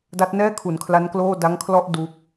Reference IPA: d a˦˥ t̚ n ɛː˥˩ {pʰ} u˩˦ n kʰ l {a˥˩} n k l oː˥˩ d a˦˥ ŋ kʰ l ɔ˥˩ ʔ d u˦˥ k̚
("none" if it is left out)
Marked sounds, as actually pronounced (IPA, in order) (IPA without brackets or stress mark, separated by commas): kʰ, a˦˥